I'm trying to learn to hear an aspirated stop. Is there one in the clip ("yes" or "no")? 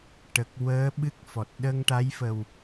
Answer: no